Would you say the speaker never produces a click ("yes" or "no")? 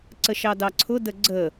no